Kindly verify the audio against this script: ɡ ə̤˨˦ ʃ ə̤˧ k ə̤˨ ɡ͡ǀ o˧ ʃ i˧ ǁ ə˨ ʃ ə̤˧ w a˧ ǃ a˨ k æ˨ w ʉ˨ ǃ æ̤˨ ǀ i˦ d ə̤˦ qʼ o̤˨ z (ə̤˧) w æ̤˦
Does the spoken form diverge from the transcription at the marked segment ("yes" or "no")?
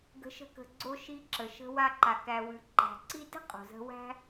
no